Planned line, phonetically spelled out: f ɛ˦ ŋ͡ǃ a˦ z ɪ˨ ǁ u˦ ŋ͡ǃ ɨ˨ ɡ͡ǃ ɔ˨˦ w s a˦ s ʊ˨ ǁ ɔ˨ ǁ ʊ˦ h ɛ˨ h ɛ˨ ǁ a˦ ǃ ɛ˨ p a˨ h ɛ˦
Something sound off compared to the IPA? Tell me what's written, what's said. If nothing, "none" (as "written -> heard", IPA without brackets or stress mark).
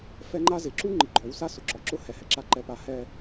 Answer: none